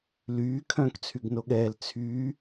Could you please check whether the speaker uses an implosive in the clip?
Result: yes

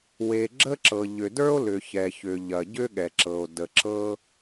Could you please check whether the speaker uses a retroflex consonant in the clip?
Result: no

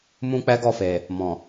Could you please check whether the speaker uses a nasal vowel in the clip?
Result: yes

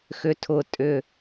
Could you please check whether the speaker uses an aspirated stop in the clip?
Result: yes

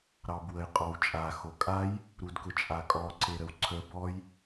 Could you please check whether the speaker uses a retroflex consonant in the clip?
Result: no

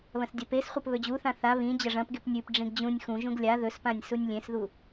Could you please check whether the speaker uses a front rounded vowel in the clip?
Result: no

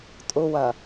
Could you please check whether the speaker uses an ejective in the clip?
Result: yes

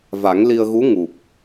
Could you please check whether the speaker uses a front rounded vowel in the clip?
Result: no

